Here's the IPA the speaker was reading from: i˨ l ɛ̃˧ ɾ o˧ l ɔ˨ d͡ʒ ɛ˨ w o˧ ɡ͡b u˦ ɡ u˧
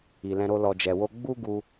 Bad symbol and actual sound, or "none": none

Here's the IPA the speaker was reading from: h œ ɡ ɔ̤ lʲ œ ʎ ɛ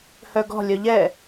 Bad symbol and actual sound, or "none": none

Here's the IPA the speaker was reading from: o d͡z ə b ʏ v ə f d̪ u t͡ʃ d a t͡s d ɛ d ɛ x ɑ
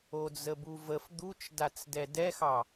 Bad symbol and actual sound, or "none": ʏ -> u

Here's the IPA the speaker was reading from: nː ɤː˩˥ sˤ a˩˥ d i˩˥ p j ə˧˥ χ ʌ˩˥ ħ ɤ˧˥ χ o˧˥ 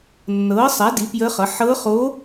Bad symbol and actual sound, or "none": none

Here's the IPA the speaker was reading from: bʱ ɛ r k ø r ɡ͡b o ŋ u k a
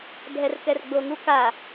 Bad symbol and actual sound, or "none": ø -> ɛ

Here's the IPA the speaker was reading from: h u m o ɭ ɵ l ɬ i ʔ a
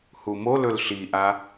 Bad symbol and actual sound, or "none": ɭ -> l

